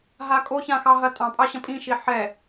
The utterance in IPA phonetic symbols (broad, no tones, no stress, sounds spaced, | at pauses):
ɦ a kʼ o ç ã x ɑ ɦ ɐ tʼ ɑ̃ pʼ ɑ ɕ ɐ̃ pʼ ĩ ʃ i ħ ɛ